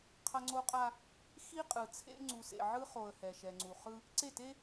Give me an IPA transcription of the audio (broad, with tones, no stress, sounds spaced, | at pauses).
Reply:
qʰ ʌ˦ ŋ͡ǀ o˦ qʼ a˦ | x i˦ qʼ ɯ˨ t͡sʰ ḛ˦ ŋ͡ǀ u˨ s ḛ˨ ʕ ɯ˦ χ o˨ ə̯ h ɛ˨ ʃ ɛ˨ ŋ͡ǀ u˨ χ ɯ˦ | ǀ e˦˨ t e˦